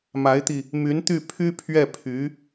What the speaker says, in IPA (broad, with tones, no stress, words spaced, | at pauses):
ma˧˥ɪ̯t̪i˧ | my˧˥nt̪y˥˩ pʰy˥ pʰɥɛ˥˩ pʰy˧˥